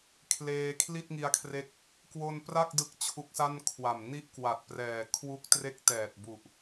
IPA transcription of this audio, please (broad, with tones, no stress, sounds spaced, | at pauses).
kʰ l eː˧ kʰ l i˥˩ t̚ ŋ i˧ a̯ kʰ r e˦˥ k̚ | k w o˧ n p r a˥˩ k̚ d ɯ˦˥ k̚ t͡ɕʰ u˦˥ k̚ s a˥˩ n kʰ w a˨˩ m n i˥˩ ʔ k w a˨˩ t̚ p r ɛː˨˩ kʰ w u˦˥ k̚ t r e˥˩ k̚ t ɛː˨˩ t̚ b u˨˩ ʔ